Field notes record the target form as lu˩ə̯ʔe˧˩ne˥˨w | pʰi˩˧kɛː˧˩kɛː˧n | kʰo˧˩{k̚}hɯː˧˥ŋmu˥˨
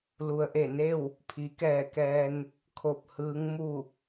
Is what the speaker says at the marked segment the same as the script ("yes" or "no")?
no